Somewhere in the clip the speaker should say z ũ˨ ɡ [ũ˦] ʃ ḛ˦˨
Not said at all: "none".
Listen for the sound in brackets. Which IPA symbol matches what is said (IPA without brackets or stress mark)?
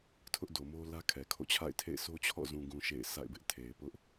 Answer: ũ˨